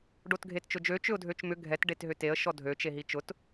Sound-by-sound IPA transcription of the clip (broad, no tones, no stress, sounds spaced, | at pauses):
ɖ o t ɡʱ e t t͡ʃ ʊ d͡ʒ ø t͡ʃ ʏ ʊ̯ dʱ ø t͡ʃ m ʏ ɡʱ ɛ t ɖ e t ɦ ʏ t e ə̯ ʃ ɔ dʱ ø t͡ʃ e ɦ i t͡ʃ ʊ t